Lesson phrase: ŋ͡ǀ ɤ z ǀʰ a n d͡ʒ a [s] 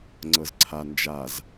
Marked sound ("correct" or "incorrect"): incorrect